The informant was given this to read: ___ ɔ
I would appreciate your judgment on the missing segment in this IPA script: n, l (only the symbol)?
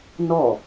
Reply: n